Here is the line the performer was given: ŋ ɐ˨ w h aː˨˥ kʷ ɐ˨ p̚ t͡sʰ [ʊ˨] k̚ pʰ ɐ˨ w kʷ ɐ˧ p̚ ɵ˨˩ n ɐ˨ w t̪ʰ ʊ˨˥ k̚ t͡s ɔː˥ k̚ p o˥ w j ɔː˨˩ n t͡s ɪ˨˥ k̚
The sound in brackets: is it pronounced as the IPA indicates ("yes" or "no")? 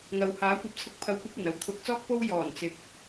no